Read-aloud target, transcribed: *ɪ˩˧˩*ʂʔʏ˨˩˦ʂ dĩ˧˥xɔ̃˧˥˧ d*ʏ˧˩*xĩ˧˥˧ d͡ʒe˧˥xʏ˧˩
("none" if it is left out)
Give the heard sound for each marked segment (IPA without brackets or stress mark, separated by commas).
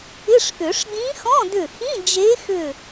ɪ˧˥˧, ʏ˧˩